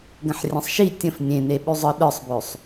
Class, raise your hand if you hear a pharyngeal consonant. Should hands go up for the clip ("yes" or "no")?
yes